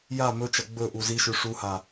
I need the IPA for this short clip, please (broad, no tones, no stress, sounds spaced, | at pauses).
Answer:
j a m ɵ t͡ʃ ɐ ɡ͡b ɵ ʔ u z i ʃ ʉ ʂ u h a